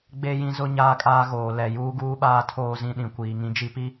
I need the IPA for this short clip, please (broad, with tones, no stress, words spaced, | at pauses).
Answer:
ɡ͡be˦jĩ˦ zʊ˦ ɲaː˦kʼaː˦ɣoː˨ lɛ˨ juː˦ɡuː˦ɓaː˦ tʰoː˦zĩ˦ɗĩ˨ kʷiː˨ŋĩ˦d͡ʒi˦pi˦